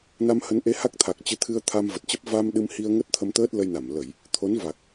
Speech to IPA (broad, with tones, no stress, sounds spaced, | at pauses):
n a˧ m h ə˨˦ n ʔ e˨˦ h a˦˥ k̚ t̪ʰ a˨˩ k̚ t͡ɕ ɨ˨˦ t̪ʰ ɨ˧ ə̯ t̪ʰ a˧ m v ə˨˩ t̚ t͡ɕ ə˦˥ p̚ v a˧ m ɗ ɨ˧ m h i˧ ə̯ ŋ ə˦˥ t̚ t̪ʰ ə˧ m t̪ əː˦˥ t̚ l ə˧ j n a˧˩ m l ə˧˩˨ j | t̪ʰ o˨˦ n v a˨˩ k̚